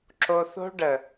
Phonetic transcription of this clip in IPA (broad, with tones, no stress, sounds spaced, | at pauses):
ǁ o˧ θ o̤˦ ɖ ə˨